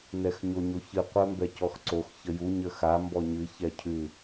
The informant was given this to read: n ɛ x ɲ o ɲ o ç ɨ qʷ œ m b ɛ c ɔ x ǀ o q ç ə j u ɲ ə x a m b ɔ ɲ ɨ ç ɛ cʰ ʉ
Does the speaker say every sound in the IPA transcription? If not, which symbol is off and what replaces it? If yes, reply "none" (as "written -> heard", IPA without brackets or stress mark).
q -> x